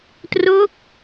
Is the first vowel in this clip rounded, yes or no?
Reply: yes